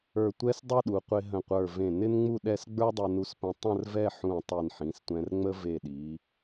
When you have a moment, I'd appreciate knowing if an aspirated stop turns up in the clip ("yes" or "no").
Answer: no